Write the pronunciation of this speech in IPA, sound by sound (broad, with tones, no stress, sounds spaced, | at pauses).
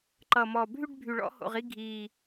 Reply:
ǃ ʌ˨˩ m ɔ˨˩ bʱ y˥˧ ɖ bʱ y˨˩ ɭ ɔ̰˥˧ h o̰˨˩ ʁ i˥˧ ɡʱ iː˨˩